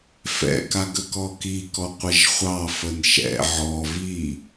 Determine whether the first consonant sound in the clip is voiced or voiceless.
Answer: voiceless